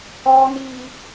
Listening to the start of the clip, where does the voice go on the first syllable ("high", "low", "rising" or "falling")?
high